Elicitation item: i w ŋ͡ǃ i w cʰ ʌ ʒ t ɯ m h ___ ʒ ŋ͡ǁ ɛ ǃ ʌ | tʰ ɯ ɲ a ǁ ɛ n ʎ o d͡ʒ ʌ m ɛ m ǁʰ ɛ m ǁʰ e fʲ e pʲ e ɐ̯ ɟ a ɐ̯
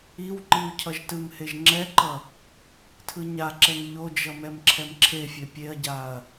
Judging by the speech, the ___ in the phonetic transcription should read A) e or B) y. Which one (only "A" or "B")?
A